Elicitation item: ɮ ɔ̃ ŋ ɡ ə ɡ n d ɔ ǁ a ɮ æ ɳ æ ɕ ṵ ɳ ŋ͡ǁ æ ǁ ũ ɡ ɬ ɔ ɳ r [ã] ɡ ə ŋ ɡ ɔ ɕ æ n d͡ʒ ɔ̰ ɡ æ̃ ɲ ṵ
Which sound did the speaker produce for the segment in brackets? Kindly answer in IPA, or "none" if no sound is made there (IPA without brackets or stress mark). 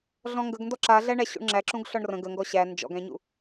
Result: ə̃